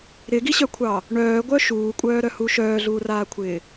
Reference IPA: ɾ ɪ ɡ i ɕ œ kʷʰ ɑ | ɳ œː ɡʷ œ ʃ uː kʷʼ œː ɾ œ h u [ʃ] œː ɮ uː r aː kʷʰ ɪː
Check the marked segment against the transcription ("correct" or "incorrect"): correct